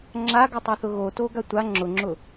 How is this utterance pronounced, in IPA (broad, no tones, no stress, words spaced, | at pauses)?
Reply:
ŋ͡ǁaɡu tˤaθʊɣo toɡatʷa ŋ͡ǁʊŋ͡ǁʊ